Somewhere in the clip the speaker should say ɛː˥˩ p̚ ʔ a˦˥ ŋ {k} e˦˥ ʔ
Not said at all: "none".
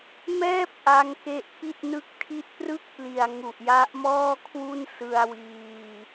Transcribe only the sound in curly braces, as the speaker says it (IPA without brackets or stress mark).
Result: k